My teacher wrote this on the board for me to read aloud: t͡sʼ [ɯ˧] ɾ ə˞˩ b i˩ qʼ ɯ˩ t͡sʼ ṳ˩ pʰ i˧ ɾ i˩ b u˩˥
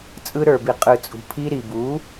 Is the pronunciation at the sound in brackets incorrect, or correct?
correct